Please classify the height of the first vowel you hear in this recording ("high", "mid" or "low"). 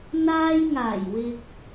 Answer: low